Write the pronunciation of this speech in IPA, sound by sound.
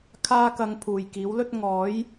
kʰ aː˥ k ɐ˧ ŋ pʰ uː˨ j k iː˨˥ w l ɵ˥ t̚ ŋ ɔː˨˥ j

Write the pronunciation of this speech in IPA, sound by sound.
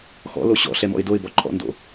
x ɔ̰ l o ɕ ɔ̰ ɬ ɛ m ɔ̰ ɪ̯ d o ɪ̯ b ɔ ǃʰ ɔ̰ n d o̰

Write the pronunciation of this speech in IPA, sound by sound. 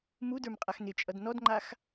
m u d ə˞ m qʼ a x n ɪ t͡ʃʼ ʌ d n ɔ d ŋ͡ǃ a x

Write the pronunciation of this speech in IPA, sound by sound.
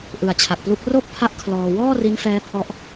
ʔ ɯ˨˩ a̯ t͡ɕʰ a˨˩ k̚ p l u˦˥ k̚ r o˥˩ k̚ pʰ a˥˩ ʔ kʰ l ɔː˧ w ɔː˥˩ r i˦˥ n f ɛː˦˥ pʰ ɔ˦˥ ʔ

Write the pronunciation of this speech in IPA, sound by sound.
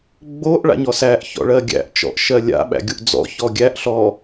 ɡ͡b o ʔ ɭ a̰ ɲ ɔ s æ ʔ ç ɔ̰ ɭ ɜ ɡʲ æ̰ ʔ t͡ʃ ɔ̰ ʔ ʃ ɜ lʲ a̰ ɓ æ̰ ɡʲ o ʔ d͡z ɔ̰ ç ɔ ɡʲ æ ʔ ɬ ɔ

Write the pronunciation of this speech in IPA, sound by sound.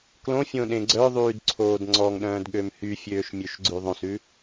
k l õ fʲ õ ɗ ẽ ɡ͡ǀ œ ðˤ yː d ǀʰ oː d ŋ͡ǀ ɔ ŋ ɗ œ̃ː d ɠ ø m h y fʲ øː ʃ mʲ ø ʃ ɡ͡ǀ ʉ ðˤ õ s ʉ

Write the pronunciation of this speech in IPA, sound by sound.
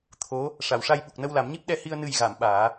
t̪ʰ o˧˥ | ʂ a˨˩˨ w ʂ a˧ j ɓ u˨˩ k̚ n ə˧ w l a˨˩˦ m ɲ i˦˥ p̚ ɗ ɛ˧ h i˧ ə̯ n ɨ˨˩ j ɣ a˨˩˨ m ɓ aː˨˩˦

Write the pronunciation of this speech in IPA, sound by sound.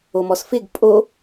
o m ɔ s f ɪ ɡ pʼ o

